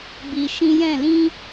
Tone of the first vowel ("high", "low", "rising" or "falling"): low